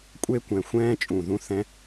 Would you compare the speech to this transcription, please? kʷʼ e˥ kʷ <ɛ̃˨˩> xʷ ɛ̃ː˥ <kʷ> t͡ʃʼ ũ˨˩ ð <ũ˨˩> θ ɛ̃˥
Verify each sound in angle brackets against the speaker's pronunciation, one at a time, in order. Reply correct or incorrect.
correct, incorrect, incorrect

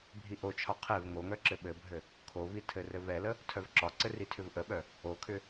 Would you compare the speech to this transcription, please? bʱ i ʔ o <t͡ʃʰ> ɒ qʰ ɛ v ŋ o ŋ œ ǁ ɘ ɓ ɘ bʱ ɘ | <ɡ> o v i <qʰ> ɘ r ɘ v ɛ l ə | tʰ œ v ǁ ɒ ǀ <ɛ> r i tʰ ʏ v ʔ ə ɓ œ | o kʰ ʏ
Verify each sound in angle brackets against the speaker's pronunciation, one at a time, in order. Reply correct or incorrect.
correct, incorrect, incorrect, incorrect

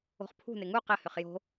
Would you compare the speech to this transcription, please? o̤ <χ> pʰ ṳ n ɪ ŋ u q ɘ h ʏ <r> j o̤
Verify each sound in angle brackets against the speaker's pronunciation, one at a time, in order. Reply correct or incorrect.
correct, incorrect

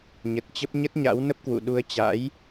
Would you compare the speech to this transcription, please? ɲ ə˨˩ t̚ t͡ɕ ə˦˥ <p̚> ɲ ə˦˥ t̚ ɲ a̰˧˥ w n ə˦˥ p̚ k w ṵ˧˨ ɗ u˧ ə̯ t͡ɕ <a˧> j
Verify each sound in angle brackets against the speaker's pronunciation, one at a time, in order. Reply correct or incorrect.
correct, incorrect

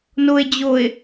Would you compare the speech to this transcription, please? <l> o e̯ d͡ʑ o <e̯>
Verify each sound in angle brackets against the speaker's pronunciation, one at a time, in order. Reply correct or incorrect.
incorrect, correct

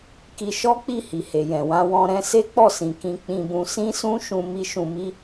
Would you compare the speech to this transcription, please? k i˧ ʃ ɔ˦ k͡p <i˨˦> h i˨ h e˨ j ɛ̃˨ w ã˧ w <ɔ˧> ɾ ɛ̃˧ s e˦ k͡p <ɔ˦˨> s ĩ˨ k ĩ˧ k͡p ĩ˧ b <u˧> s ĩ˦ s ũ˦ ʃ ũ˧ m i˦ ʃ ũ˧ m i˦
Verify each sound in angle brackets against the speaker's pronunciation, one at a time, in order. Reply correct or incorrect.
incorrect, incorrect, correct, incorrect

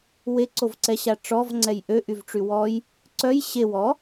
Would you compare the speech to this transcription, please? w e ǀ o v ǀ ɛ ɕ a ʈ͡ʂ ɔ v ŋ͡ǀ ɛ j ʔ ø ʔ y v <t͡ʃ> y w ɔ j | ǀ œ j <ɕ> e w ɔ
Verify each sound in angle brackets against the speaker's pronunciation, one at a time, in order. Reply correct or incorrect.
incorrect, correct

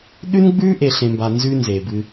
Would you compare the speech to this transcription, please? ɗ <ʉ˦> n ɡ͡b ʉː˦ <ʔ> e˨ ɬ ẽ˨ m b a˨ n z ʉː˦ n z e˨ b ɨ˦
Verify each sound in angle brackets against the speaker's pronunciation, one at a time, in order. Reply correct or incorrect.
correct, correct

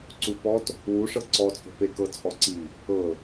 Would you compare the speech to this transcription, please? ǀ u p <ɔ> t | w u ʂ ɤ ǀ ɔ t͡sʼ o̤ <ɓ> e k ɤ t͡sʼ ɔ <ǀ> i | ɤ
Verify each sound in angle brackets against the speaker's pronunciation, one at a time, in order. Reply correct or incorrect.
correct, incorrect, correct

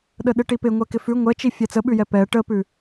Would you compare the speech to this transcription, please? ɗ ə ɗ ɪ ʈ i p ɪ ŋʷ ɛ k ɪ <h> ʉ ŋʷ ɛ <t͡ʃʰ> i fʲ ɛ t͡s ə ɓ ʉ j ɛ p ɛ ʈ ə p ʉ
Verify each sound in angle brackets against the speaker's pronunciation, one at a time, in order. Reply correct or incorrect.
incorrect, incorrect

